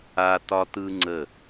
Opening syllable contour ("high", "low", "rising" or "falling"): high